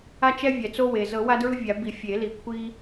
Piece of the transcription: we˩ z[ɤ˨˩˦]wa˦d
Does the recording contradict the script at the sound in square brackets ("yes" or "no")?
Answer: no